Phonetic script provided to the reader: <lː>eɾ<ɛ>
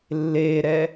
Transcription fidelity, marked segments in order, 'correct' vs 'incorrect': correct, correct

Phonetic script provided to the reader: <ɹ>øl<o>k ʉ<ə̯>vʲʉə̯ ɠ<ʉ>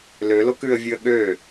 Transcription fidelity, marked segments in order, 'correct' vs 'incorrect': incorrect: l, correct, correct, incorrect: ø

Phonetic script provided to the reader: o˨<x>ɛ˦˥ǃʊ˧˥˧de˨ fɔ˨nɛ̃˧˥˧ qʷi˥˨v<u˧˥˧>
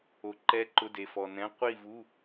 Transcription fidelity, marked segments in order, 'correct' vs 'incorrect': incorrect: ǃ, correct

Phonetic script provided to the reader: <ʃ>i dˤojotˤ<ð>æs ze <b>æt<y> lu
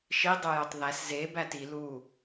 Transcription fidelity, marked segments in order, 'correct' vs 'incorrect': correct, correct, correct, incorrect: i

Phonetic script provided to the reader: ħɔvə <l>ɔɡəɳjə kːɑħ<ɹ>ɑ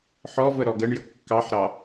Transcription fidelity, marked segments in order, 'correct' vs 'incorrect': incorrect: ɾ, incorrect: ɾ

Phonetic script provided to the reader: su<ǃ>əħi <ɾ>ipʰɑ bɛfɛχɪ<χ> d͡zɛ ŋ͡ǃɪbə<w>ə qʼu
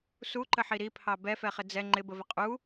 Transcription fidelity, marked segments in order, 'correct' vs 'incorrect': correct, correct, incorrect: none, incorrect: v

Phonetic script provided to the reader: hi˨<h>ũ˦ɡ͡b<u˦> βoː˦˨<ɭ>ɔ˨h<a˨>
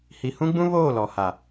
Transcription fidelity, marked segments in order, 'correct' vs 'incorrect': correct, incorrect: ũ˦, incorrect: l, correct

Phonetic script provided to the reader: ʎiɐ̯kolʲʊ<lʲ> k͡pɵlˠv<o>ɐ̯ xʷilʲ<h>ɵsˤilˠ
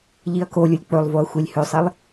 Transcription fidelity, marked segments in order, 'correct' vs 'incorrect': correct, correct, correct

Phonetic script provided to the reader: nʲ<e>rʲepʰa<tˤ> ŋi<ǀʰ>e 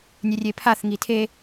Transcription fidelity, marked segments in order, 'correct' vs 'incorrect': correct, incorrect: θ, incorrect: tʰ

